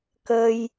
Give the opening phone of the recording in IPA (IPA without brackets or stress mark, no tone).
k